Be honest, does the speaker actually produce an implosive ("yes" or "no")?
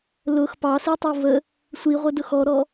no